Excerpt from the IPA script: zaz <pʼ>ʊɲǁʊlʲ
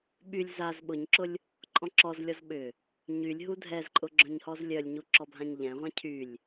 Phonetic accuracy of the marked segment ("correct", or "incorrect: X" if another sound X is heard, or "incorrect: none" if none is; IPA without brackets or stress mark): incorrect: ɓ